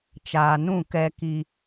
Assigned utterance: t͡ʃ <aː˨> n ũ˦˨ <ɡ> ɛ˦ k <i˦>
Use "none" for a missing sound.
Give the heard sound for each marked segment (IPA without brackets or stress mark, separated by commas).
aː˨, k, i˦